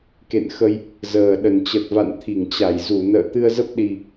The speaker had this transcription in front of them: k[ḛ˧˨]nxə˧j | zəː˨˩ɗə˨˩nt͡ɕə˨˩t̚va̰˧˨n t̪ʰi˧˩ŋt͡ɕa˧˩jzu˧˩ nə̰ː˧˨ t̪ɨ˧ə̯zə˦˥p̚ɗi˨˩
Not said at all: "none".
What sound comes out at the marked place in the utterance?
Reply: ḛ˧˨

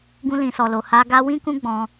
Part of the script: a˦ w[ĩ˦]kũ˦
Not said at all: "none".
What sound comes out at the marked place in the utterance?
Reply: ĩ˦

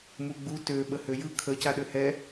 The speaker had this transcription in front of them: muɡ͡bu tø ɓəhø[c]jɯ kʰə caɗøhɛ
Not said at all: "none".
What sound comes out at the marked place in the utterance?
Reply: none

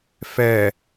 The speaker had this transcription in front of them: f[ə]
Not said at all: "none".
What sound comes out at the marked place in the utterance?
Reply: ɛ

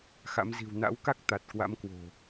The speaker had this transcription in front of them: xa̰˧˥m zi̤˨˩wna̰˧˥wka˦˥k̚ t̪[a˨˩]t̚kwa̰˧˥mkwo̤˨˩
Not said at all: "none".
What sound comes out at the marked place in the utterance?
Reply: a˨˩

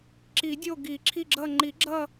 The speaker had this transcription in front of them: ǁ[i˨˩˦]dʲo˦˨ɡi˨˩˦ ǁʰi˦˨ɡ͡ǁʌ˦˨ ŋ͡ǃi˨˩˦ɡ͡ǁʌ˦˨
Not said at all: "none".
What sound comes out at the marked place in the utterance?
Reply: i˨˩˦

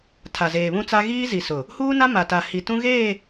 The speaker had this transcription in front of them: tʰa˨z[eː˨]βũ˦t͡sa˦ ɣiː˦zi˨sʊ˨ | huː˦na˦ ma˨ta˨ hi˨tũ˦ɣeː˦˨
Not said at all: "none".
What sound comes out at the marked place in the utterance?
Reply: eː˨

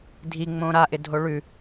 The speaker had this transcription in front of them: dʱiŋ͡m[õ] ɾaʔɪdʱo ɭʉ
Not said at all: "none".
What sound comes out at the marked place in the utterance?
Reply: õ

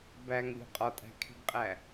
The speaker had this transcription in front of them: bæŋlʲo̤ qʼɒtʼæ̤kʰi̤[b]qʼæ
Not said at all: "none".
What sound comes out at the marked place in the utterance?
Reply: b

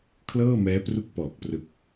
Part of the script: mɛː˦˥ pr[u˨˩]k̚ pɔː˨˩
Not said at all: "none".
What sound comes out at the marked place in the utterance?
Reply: u˥˩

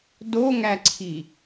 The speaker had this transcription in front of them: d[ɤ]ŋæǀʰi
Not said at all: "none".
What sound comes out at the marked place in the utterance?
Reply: o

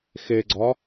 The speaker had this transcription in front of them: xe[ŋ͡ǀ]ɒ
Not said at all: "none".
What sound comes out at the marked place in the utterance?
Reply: ɡ͡ǀ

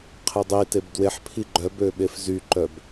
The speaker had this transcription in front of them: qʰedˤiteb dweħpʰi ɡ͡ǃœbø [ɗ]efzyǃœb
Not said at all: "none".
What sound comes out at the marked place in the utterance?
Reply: ɓ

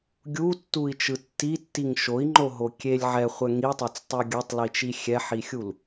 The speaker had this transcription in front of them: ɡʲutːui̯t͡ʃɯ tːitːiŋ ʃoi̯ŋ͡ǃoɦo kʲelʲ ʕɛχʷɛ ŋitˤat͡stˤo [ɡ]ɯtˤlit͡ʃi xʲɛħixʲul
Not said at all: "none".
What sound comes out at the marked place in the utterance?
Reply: ɡʲ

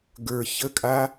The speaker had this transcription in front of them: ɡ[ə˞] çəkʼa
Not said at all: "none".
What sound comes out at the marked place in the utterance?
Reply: ə˞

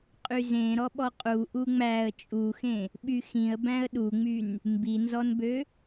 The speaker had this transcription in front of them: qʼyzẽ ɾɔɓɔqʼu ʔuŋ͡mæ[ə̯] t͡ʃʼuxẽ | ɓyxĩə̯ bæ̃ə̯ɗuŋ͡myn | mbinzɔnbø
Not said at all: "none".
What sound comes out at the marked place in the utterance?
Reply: ə̯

